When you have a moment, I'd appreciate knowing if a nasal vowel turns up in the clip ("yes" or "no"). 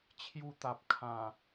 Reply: yes